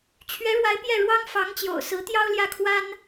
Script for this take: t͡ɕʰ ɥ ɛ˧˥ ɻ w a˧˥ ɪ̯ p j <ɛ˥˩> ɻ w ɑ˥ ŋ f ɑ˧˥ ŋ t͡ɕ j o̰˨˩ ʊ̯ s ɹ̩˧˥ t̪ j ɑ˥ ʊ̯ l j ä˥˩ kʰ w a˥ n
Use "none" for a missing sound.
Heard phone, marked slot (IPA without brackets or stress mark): ɛ˥˩